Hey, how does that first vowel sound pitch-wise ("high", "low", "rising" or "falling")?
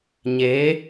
rising